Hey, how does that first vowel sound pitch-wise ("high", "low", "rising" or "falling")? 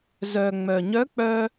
low